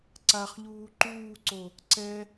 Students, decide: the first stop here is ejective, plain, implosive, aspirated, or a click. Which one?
click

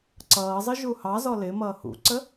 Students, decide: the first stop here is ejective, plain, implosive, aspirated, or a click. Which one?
click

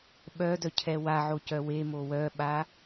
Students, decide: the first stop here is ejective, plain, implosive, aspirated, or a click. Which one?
implosive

